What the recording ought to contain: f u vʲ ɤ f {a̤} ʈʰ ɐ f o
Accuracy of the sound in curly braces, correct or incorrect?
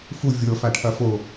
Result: incorrect